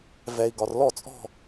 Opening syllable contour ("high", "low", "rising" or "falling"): low